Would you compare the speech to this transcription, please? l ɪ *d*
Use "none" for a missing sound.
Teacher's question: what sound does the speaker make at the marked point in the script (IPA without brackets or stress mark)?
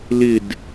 d